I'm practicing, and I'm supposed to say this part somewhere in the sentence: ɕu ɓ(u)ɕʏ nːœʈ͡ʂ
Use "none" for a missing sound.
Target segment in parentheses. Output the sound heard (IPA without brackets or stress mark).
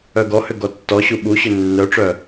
u